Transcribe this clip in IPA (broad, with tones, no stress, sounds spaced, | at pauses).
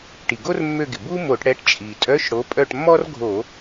ʈ i˩ ɡ o˥ r mː ø˦˨ ɡ ɪ˩ b u˥ m o˧˩˧ ʈ ɽ ɛ˨˥ ʈ t͡ʃʼ i˩ tʼ œ˧˥˧ ʃ ɽ o˨˥ pʼ œ˦˨ ʈ mː ɔ˥ r ɡʱ o˧˩˧